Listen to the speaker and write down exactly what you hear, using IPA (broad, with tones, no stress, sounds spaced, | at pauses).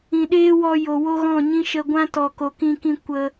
ĩ˨ ɗ eː˦ w ɔ˧ j o˨ w o˦ ɣ ɔ̃˦˨ ɲ ĩ˦ ʃ ə˧ ɡʷ ã˦ t ɔ˨ k o˨ k ĩ˧ k ĩ˧ kʷ ə˧